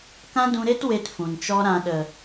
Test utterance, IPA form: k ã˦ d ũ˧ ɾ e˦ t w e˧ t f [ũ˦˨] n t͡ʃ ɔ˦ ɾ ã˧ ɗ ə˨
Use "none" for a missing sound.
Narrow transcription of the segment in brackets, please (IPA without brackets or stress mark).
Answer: ũ˨